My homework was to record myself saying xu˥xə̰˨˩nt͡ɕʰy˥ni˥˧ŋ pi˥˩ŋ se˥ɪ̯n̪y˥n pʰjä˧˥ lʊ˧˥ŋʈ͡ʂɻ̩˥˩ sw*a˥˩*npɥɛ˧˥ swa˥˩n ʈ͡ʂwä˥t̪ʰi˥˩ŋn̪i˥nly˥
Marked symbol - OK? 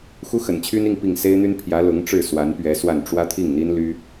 no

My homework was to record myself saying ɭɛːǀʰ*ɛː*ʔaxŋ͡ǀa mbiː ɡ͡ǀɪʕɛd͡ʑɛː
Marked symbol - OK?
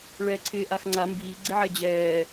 no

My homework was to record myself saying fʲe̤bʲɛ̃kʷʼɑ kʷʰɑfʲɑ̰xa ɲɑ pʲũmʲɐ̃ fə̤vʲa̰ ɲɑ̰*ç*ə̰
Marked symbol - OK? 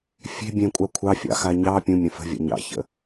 yes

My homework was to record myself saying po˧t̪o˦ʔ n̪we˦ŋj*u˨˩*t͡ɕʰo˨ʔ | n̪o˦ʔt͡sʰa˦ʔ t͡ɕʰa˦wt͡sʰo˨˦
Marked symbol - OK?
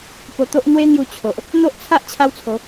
no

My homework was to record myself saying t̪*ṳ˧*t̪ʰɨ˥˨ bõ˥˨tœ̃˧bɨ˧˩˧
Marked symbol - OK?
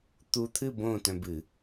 no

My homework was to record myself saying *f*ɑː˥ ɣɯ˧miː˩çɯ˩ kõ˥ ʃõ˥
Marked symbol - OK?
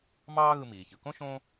no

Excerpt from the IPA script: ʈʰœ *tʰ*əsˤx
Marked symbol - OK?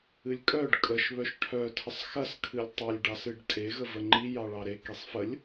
yes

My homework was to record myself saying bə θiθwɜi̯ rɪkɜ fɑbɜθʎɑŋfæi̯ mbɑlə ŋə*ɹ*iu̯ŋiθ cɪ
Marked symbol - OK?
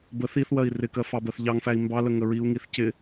yes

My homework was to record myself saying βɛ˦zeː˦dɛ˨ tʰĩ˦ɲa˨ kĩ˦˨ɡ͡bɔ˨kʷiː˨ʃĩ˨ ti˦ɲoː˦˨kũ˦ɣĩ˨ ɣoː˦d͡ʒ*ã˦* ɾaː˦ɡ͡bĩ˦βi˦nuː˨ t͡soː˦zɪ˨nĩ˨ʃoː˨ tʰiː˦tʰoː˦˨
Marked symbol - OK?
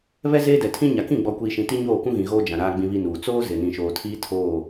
no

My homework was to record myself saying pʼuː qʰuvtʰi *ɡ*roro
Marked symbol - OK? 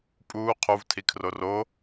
no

